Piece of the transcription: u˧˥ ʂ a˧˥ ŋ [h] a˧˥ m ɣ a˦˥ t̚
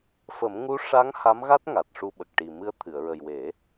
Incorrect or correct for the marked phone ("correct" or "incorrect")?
correct